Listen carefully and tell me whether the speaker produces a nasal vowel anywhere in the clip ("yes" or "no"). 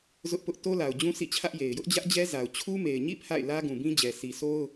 yes